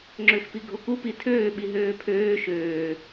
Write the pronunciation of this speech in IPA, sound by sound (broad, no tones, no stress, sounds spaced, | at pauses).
ŋ͡ǁ ø x p i ɡʱ o k u p i tʰ øː ɓ i ɦ øː pʰ øː ʃ øː